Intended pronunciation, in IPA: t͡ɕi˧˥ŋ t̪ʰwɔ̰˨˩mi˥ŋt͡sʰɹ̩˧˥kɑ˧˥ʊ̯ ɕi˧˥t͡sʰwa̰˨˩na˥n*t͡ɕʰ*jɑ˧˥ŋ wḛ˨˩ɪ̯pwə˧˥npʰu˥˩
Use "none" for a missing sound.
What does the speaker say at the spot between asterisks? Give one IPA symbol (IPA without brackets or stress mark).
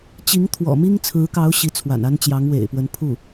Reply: t͡ɕ